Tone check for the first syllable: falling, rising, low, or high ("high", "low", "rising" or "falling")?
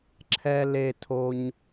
high